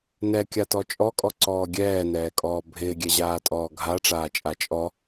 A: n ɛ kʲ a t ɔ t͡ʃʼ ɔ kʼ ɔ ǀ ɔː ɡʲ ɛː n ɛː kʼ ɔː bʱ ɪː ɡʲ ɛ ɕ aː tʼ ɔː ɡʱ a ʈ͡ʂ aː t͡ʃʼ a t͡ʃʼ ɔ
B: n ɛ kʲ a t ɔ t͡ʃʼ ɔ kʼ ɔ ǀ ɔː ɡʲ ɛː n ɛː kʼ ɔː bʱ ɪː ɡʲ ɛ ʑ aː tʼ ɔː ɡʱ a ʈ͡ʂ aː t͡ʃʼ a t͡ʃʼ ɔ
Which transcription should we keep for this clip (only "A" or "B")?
B